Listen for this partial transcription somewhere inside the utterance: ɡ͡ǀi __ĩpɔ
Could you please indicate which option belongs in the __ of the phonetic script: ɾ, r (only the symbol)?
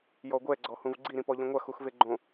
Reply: ɾ